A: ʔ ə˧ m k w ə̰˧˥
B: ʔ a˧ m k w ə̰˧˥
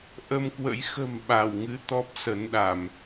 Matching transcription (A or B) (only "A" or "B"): A